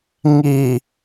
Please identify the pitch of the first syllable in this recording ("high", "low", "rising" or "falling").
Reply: low